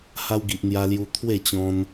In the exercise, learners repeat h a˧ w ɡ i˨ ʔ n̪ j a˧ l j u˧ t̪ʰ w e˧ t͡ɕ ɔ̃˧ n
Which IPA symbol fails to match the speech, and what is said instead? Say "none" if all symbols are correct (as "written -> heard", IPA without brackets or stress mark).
e˧ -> e˥˧